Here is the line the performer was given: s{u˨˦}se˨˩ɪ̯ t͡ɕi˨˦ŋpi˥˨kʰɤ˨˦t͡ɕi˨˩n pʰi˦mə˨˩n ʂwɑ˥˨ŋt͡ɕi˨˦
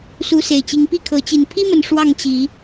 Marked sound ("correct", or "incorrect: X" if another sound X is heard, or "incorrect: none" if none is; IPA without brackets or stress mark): correct